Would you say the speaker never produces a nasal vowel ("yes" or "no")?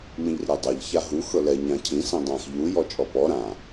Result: no